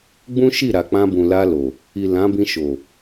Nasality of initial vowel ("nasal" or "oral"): nasal